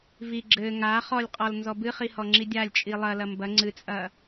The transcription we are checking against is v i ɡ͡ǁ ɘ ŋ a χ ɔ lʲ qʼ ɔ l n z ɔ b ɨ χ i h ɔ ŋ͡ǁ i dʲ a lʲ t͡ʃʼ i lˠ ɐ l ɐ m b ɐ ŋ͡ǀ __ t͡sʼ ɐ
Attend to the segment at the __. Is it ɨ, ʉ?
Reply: ɨ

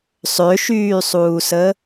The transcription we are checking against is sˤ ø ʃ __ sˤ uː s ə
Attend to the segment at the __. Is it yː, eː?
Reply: yː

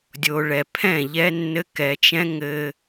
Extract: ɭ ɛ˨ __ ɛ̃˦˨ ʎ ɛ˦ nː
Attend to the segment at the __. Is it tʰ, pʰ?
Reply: pʰ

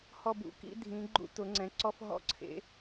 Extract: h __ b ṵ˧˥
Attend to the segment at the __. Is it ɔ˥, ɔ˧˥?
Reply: ɔ˥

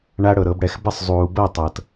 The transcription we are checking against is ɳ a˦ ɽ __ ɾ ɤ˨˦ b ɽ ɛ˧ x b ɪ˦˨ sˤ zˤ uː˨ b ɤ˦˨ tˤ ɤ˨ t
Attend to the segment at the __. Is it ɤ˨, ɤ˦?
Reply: ɤ˨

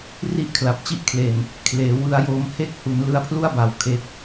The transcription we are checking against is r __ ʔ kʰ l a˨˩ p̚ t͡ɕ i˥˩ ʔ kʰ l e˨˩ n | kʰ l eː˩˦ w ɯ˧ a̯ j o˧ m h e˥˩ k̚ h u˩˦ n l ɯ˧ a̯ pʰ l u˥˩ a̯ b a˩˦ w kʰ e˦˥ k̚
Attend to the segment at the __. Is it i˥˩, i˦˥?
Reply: i˥˩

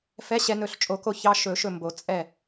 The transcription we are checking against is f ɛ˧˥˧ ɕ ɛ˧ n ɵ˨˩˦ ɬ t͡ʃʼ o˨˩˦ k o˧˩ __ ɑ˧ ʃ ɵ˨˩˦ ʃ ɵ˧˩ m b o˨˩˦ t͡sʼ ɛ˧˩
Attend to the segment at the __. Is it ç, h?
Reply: ç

